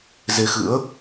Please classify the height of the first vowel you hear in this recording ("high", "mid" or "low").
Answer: mid